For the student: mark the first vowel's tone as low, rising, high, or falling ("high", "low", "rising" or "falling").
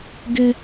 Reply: high